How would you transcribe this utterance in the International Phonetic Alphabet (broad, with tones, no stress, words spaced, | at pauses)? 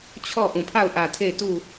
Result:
t͡ɕʰɔ˦˨ʔũ˨pʰa˦˨ʊ̯ ʔä˨tʰe˦˨ɪ̯ tu˦˨